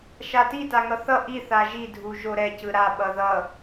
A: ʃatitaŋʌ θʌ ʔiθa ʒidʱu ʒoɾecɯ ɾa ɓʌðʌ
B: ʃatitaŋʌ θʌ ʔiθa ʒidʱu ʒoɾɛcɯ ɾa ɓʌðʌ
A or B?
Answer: B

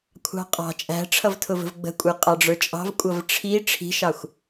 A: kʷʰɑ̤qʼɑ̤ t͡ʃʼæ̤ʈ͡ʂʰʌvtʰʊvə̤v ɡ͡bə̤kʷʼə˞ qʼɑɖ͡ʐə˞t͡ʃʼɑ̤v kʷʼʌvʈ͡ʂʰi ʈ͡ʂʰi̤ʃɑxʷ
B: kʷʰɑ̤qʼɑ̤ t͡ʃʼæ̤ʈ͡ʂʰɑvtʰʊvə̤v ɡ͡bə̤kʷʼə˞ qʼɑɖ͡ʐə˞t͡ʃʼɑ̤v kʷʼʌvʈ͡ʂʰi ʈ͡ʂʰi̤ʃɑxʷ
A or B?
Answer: A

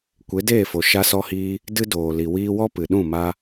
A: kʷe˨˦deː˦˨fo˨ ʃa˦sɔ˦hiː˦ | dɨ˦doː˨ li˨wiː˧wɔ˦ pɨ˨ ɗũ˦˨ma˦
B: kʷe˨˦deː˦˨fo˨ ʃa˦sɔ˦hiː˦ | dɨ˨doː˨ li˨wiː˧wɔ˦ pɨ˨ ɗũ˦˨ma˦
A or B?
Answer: A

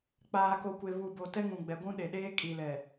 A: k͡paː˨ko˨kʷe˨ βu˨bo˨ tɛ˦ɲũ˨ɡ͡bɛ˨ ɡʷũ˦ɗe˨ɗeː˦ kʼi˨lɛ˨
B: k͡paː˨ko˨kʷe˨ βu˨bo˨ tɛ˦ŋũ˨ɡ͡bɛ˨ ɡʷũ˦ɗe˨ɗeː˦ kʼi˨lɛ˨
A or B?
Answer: B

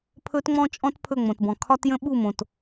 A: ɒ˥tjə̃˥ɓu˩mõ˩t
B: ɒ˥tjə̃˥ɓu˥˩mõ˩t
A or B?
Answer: B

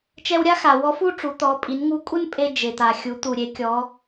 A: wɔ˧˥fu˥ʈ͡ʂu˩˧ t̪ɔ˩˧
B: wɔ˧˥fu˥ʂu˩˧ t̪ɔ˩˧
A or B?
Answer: A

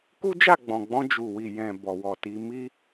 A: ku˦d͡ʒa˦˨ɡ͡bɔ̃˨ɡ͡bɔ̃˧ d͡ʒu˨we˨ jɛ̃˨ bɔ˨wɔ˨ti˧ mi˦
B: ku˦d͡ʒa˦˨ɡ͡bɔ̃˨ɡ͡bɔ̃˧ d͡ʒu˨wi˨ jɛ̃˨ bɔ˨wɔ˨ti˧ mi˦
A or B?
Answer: B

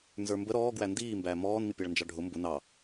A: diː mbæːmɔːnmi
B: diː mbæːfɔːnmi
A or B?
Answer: A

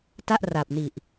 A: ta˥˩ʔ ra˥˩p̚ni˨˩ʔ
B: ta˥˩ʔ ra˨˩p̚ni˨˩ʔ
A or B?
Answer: B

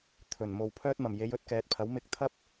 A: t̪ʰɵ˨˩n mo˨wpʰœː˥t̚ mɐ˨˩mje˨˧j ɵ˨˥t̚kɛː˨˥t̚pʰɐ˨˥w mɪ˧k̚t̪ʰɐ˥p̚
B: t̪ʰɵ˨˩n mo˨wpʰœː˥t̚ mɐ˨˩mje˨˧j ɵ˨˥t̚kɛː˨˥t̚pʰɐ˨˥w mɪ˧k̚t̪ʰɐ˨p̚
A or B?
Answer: A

